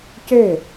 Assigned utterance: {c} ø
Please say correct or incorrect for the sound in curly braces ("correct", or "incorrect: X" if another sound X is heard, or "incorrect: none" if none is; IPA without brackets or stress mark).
correct